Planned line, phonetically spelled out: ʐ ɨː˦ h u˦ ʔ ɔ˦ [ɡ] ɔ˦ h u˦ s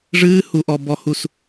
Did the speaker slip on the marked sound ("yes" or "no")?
yes